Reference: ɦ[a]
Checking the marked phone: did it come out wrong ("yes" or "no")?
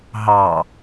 yes